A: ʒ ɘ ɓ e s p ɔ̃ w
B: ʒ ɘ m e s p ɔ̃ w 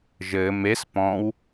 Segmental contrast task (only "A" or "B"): B